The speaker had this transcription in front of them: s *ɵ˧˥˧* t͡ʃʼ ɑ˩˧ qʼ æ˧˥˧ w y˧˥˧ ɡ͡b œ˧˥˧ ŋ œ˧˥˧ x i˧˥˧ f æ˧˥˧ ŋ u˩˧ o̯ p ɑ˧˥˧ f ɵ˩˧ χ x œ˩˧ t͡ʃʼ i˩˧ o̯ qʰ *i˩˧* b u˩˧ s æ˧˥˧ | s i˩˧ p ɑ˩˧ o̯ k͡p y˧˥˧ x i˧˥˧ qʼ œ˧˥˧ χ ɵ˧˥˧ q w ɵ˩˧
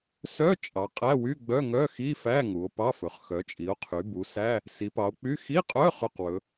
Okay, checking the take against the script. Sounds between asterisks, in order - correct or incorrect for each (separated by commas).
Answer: incorrect, incorrect